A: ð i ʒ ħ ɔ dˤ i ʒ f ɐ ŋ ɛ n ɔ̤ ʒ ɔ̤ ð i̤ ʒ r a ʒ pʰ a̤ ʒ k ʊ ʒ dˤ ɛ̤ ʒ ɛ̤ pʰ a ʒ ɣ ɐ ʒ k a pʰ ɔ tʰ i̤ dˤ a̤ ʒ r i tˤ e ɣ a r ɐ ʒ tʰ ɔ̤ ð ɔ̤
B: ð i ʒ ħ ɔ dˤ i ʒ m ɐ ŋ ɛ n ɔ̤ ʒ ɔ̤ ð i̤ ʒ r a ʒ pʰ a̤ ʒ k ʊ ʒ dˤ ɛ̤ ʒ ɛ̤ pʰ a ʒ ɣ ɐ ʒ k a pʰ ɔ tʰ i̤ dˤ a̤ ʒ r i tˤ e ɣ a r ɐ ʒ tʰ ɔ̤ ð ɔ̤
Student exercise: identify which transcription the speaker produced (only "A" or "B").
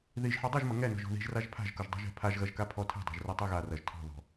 B